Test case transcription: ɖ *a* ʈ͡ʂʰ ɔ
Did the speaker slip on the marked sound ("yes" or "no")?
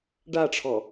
no